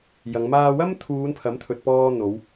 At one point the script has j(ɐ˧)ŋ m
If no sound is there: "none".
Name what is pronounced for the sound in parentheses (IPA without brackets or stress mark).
ɐ˨˧